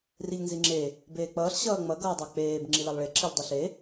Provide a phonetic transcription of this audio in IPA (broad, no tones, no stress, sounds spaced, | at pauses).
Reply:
r i ʎ n z i ŋ͡ǁ e | b eː k͡p ʌː ɬ ɕ ʌː ŋ͡m ʌ ɡ ʌː dˤ a k͡p eː b ŋ͡ǁ i l a lˠ ɭ e ǁ i ʎ dˤ i ɬ e